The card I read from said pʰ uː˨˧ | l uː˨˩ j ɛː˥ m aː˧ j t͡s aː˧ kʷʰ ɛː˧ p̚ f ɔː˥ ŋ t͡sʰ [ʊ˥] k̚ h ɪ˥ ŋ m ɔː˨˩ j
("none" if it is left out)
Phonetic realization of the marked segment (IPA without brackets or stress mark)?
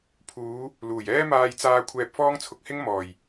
ʊ˧